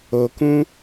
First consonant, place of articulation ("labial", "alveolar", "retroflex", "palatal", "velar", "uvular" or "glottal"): velar